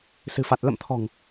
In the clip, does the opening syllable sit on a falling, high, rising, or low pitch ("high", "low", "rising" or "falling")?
low